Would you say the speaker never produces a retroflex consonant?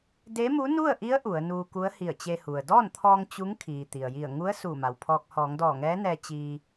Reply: yes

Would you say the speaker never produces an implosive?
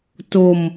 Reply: yes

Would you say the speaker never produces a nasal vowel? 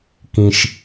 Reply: no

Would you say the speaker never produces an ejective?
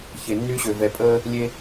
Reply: no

